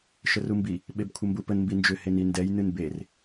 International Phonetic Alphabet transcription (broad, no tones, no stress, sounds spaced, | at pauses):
ʃ ə r u m b i | ɓ e b kʷʰ ə m b u p ə n m b i n d͡ʒ ʏ h e n i n d ɛ j n ɨ n b e r